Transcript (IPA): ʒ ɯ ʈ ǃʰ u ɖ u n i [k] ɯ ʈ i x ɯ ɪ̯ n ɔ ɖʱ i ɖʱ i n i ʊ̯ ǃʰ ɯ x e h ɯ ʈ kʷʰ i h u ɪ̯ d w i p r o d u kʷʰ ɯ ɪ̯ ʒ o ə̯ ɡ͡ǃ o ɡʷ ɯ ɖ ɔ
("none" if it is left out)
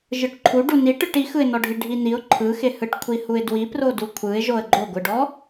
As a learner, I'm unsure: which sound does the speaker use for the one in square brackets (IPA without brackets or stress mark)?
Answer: ʈ